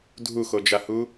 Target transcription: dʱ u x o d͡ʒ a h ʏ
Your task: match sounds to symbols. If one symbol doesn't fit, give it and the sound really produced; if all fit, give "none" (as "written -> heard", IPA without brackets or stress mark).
ʏ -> u